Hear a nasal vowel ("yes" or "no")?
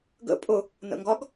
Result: no